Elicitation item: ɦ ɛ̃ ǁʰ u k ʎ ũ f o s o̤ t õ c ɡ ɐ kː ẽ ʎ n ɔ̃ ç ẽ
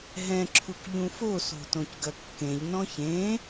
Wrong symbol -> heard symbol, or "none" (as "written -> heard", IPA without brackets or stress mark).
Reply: none